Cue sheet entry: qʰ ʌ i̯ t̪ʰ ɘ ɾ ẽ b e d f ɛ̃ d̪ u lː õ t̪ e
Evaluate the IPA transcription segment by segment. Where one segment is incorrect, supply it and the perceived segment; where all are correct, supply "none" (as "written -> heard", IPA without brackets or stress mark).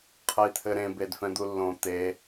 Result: none